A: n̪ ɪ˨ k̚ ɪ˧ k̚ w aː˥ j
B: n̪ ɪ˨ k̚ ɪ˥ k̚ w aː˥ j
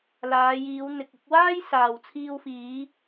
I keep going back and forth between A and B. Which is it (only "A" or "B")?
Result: A